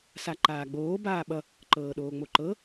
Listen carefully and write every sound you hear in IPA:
saǃaːɡ͡boː baːɓʌ | ǃɤːɗoːŋ͡moǃɤ

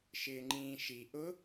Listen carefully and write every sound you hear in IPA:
ʃɪːŋ͡ǃĩːʃi ʔʊ

